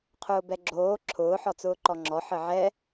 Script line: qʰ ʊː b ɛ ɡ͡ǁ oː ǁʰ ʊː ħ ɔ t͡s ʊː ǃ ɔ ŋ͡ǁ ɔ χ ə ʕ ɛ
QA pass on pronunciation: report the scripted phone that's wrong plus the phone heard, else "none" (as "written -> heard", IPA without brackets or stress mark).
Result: χ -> ħ